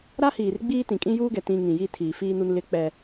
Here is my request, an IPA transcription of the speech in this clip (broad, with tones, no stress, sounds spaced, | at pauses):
ɾ a˦ h iː˨ r ɡ͡b iː˦ t ĩ˨ kʼ ĩ˦ j uː˦ ɡ ɛ˨ t ĩ˦ ŋ ĩ˨ j i˦ tʰ iː˨ f iː˦ n u˦ n l ɪ˦ k͡p ɛ˦